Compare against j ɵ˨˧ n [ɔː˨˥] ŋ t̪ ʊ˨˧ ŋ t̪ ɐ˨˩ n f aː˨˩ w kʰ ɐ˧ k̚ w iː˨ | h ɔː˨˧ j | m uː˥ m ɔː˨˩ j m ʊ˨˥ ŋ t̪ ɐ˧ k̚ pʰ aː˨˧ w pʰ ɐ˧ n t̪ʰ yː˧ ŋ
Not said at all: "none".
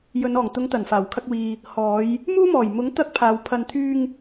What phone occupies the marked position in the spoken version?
ɔː˨˩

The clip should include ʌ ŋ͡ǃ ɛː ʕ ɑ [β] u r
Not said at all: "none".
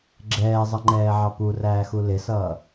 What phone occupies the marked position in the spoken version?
p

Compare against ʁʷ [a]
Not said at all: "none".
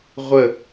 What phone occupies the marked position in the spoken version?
ə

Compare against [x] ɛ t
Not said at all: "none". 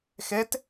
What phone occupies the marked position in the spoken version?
x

